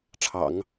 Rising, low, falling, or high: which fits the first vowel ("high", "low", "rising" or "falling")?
low